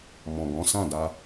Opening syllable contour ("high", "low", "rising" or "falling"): low